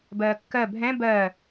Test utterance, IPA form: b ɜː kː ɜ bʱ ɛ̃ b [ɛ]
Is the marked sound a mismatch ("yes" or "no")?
yes